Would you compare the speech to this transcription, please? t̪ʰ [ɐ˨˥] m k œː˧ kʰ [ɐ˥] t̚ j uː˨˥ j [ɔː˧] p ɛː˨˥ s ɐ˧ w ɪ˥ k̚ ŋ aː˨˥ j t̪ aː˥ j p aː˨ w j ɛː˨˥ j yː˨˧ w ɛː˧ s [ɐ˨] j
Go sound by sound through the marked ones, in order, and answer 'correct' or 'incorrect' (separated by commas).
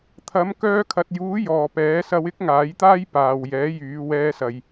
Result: incorrect, incorrect, incorrect, correct